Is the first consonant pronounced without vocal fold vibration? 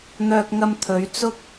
no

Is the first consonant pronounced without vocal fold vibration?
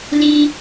no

